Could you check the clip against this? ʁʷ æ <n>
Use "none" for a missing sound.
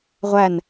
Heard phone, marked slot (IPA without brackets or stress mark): n